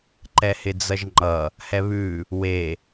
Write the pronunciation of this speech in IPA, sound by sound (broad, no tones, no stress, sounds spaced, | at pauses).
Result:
ǃ ɛ h ɪ d͡z ʌ ʒ ŋ͡ǃ ʌ | h ɛ β ʉ | w e